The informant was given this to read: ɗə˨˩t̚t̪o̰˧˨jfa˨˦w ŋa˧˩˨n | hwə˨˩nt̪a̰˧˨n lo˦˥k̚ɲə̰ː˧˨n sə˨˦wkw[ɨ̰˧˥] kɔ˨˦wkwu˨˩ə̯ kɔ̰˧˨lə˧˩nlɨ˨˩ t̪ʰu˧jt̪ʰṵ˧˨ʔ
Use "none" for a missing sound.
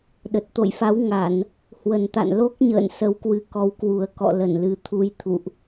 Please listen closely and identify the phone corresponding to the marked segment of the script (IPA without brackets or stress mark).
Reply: ɨ˨˦